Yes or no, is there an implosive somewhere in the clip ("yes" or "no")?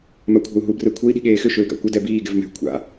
yes